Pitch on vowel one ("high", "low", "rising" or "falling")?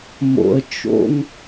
low